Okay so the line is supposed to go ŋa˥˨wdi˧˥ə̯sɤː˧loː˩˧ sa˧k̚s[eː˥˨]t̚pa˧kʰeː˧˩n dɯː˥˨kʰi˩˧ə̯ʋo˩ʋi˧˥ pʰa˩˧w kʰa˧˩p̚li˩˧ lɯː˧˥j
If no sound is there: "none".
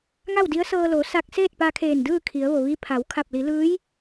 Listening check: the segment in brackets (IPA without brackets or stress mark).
eː˥˨